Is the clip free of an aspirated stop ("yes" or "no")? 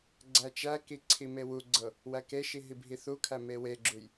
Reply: no